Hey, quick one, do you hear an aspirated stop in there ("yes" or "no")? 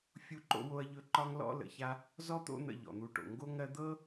no